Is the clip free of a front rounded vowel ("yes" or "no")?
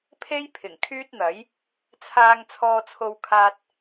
no